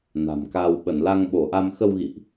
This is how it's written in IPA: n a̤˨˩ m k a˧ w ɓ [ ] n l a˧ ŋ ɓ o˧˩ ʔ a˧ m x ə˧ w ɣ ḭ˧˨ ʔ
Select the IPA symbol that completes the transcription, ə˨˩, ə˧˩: ə˧˩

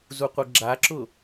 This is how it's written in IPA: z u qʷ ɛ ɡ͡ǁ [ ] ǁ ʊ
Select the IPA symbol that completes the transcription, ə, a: a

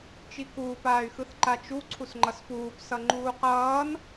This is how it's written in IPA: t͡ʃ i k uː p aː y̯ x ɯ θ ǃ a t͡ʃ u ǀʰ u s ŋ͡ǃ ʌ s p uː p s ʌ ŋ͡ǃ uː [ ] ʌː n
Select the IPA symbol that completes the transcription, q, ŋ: q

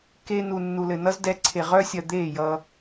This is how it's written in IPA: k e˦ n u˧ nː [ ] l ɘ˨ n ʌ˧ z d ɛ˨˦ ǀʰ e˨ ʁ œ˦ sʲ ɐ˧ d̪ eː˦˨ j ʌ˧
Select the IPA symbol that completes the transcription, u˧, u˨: u˨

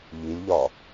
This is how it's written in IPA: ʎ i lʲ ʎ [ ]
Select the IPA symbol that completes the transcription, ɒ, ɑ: ɒ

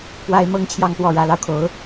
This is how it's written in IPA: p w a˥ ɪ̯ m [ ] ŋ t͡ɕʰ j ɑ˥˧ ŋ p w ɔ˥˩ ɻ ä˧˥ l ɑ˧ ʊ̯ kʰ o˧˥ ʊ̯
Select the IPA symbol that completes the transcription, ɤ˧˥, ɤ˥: ɤ˥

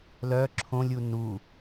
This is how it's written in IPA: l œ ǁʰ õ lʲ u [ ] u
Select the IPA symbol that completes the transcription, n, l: n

